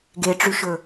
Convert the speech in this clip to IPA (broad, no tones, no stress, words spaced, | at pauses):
ɡeʈ͡ʂyʃɵ